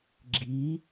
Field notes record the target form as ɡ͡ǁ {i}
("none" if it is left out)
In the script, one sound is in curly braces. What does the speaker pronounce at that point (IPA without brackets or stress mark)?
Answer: i